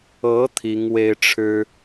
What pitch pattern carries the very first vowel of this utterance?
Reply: rising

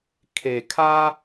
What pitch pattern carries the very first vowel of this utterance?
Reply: low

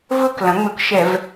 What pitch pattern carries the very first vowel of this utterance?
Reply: falling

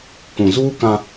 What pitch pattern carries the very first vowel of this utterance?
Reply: low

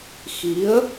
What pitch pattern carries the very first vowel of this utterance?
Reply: rising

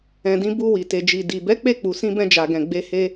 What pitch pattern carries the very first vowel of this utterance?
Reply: low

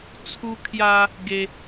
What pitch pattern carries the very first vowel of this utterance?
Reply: high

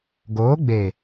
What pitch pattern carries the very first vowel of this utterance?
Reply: rising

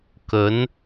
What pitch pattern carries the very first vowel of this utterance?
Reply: rising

